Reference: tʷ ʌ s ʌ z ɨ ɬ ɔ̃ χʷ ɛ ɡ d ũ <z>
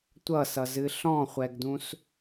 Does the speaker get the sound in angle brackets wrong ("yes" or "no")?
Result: yes